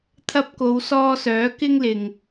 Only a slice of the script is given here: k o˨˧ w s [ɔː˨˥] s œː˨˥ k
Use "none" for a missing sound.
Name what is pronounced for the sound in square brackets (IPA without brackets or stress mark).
ɔː˧